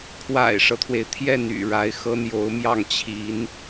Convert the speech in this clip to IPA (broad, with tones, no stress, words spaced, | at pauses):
kʰwa̰˨˩ɪ̯ʂɤ˦t̪ʰwe˩ɪ̯t̪ʰjɛ˥˩n y̰˨˩ɻa˧˥ɪ̯xɤ˥ n̪jo˧˥ʊ̯mjɑ˥˩ŋ t͡ɕʰi˧˥n